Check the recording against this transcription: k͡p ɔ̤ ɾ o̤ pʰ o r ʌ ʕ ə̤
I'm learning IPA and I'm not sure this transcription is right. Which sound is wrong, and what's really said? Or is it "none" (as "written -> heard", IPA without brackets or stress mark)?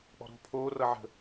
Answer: o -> oː